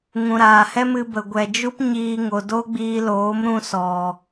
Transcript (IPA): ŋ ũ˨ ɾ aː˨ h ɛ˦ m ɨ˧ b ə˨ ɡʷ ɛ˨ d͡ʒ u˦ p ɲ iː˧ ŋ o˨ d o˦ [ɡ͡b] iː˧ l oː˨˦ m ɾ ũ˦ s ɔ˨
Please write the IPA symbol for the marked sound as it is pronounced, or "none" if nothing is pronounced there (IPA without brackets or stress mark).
ɡ͡b